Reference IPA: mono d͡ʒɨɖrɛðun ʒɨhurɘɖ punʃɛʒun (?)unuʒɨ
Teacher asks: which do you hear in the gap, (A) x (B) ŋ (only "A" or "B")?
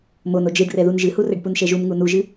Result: B